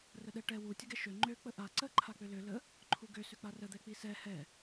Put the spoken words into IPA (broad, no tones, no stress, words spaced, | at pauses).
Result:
rəɗɛʈɛ wu tʲəɡɛʃø ŋ͡ǃø k͡pəʔa ǀə ǃʰak͡pølø lə | ǃʰuɡø søk͡parə d̪ɛk͡pisɛ hɛ